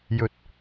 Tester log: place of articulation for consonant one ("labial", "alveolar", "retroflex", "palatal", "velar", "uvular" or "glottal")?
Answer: palatal